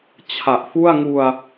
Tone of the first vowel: low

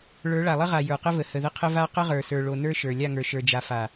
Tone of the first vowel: rising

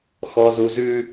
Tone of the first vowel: low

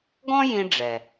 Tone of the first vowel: high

